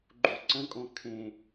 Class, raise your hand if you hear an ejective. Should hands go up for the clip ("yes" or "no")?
yes